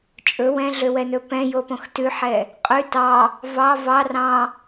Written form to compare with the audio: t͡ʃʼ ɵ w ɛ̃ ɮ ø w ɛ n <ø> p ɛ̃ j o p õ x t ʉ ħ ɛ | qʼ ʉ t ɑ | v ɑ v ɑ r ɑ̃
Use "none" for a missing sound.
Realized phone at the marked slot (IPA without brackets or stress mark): ɵ